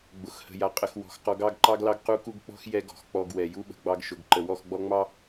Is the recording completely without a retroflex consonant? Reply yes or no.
yes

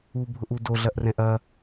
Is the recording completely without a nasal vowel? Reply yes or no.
no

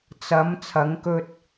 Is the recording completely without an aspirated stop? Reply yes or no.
no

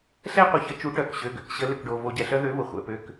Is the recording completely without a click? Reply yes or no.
yes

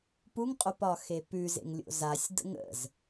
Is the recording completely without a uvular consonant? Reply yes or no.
no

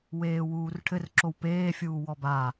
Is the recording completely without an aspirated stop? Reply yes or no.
no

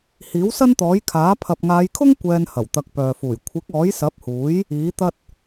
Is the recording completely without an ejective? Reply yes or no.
yes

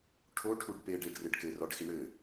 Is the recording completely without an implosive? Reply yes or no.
yes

